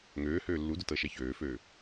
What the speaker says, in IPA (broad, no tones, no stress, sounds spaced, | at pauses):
ŋ øː h øː lː u d ʊ t ɤ ʃ ɛ ç øː f øː